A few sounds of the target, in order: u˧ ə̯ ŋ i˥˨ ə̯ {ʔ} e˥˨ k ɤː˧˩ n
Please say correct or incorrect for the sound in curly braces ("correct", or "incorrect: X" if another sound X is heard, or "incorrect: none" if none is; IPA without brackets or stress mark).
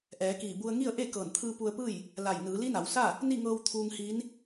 correct